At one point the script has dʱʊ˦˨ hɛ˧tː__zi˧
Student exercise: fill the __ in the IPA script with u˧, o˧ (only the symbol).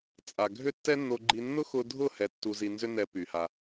u˧